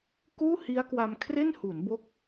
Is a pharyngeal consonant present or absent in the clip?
absent